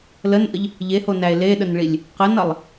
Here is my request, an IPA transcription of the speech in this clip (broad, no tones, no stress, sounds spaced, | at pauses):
l ə n ʔ ə ʎ | ʎ e h o n æ e̯ l e ɗ ə n ɭ i lʲ | q ə n ʌ lˠ